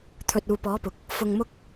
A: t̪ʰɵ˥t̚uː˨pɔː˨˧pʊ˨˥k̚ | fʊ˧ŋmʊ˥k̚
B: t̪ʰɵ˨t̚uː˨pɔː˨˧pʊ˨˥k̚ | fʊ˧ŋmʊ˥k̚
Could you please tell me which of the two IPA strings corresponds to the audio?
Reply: B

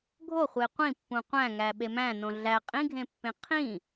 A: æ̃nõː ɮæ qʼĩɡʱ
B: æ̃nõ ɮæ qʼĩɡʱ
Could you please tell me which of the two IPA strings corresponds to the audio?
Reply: B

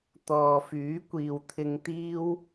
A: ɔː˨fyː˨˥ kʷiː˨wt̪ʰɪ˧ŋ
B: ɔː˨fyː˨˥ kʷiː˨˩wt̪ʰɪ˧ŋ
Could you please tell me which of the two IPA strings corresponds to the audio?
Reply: A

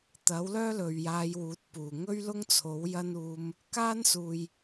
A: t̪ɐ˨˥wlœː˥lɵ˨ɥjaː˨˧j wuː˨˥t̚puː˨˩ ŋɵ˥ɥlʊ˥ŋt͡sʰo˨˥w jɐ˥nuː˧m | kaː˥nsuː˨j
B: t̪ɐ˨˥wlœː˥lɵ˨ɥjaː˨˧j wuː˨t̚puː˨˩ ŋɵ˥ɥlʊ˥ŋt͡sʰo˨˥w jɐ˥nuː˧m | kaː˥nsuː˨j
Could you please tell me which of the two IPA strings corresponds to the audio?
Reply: A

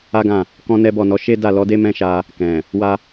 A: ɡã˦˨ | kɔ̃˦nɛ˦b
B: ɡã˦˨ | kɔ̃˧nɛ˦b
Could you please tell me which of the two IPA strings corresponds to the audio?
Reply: A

